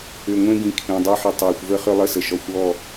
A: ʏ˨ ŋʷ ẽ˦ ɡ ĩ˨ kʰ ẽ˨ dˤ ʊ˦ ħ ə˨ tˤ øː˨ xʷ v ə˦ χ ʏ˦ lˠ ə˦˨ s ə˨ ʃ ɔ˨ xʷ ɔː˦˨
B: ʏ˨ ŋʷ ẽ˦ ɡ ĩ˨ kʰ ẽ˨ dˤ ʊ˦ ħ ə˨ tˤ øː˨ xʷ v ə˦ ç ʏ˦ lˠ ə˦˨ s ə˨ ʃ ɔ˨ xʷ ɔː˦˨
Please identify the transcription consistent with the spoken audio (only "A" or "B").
A